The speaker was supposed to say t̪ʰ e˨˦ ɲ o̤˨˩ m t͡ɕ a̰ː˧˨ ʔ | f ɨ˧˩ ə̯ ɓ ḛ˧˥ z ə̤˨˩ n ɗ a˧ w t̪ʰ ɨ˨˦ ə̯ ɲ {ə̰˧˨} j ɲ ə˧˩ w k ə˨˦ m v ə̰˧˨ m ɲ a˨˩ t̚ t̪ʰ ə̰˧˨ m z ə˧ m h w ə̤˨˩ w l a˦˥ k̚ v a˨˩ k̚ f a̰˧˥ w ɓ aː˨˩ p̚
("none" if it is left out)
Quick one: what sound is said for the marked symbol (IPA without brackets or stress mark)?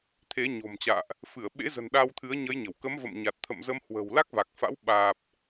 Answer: ə˨˦